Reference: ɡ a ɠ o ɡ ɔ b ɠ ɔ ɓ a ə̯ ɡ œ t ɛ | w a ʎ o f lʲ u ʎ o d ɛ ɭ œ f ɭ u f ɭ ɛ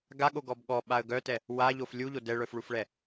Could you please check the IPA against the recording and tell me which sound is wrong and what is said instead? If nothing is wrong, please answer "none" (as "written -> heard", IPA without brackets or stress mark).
none